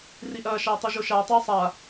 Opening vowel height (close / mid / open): close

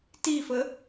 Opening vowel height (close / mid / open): close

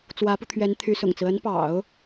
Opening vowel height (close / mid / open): open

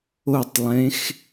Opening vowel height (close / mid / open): mid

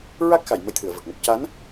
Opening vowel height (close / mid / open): open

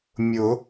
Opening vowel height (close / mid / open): close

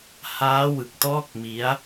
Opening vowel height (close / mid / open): open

